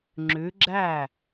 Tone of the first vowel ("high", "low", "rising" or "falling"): rising